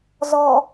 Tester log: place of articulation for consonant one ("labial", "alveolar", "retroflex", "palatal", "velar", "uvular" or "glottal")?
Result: alveolar